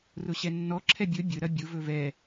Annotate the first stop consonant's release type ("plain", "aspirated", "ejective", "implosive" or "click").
click